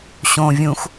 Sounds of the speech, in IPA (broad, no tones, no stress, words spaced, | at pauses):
ɕõ vʲũx